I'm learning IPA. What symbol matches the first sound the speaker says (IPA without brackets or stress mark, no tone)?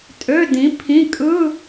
tʼ